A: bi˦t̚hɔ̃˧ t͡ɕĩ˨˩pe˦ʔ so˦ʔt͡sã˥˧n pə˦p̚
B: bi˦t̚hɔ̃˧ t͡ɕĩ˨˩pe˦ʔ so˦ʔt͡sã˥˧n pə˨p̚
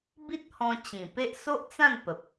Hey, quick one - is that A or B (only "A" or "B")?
B